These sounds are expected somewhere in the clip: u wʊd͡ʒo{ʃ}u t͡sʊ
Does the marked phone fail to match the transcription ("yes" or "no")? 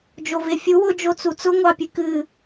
yes